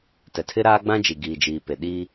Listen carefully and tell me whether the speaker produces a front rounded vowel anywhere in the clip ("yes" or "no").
no